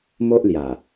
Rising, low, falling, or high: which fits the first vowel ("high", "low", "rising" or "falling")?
high